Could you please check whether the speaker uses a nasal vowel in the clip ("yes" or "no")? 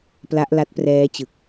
no